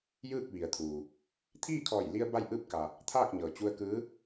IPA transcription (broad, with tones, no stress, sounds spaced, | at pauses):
j ɯː˥˨ k̚ ʋ i˩ ə̯ t̪ʰ uː˩ | t̪ʰ iː˥˨ kʰ ɔː˧˩ j l i˧ ə̯ b a˥˨ j ʔ ɯː˥˨ p̚ k a˩ | t̪ʰ aː˥˨ k̚ ɲ ɤː˩ t͡ɕ u˧ ə̯ k ɯː˧˥